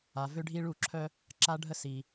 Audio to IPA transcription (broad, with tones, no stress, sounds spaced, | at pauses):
a˨ v ø˦ ɖʱ i˦ ɭ u˦˨ ǁʰ œ˦ | ǁ a˦ ɖʱ ə˦ s i˨